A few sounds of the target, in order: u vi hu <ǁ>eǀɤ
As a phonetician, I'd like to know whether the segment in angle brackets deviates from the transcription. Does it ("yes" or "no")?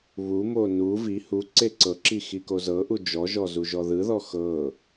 yes